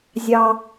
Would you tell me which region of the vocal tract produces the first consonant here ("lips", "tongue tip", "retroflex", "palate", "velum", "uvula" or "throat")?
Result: tongue tip